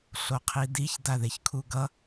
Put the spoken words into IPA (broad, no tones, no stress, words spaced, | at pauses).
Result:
ɬoqʰidiç daðeçkʰuɡʌ